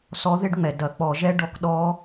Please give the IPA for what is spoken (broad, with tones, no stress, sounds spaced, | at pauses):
s ɔ˧˥ ð e˥ ɖ ŋ͡m ɛ˩ d ɐ˧˩˧ k͡p ɔ˧˩˧ ʒ ɛ˥ ɖ ɔ˧˥ k ɗ ɔ˧˥